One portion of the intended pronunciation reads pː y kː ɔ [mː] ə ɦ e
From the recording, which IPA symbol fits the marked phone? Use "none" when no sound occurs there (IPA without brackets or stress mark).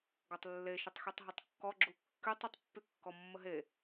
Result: mː